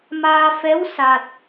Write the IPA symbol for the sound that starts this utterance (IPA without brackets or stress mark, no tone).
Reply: m